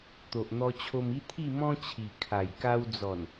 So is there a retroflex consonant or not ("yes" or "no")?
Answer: no